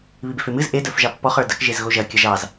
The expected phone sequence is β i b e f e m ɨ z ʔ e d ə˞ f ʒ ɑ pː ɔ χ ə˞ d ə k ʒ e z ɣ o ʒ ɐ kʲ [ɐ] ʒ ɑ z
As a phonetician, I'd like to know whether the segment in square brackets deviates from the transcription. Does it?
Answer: no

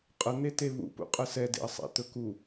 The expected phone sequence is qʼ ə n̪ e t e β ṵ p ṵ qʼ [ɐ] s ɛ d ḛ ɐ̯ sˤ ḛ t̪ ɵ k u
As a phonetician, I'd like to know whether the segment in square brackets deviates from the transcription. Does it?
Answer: yes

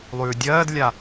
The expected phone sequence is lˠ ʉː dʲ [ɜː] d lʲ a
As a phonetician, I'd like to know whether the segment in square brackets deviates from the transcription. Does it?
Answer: no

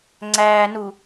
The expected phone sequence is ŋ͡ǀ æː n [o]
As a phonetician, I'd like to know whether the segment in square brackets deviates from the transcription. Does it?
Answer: yes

